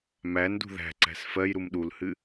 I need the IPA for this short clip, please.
m æ n d ṳ ð æ̤ ǀ æ̤ s f ɜ j ɾ u m ɗ u l h ɨ

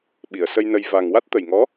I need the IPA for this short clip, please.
ɓ i˨˩˨ ə̯ s ə˧ j n ə˧ j v a˨˩ ŋ w a˦˥ t̚ t̪ ə˨˩ j ŋ ɔ˧˥

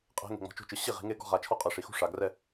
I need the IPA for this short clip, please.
qʼ e̤˨˦ ŋ e̤˨ ŋ͡m ɔ̤˨ t͡ʃ o̤˥˩ t͡ʃ ɯ˨ ɕ i˥˩ ʁ i̤˨˦ ŋ e˥ ɡ ɔ̤˥˧ ʁ a˨˦ t͡ʃʰ ɔ˥ qʼ ɯ˨ ʂ i˨ x ṳ˥˧ ʂ a˨ ɡ r ɛ˥˧

